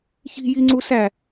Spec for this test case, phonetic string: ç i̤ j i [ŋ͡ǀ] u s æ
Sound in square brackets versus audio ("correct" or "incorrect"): correct